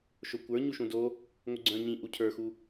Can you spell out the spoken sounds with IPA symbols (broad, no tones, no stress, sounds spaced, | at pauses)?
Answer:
ʃ o kʷ ə˞ ɲ u ʃ ũ d o | ŋʷ ɪ ɡ͡ǀ œ̃ ɲ ĩ ʔ u cʰ ə˞ x u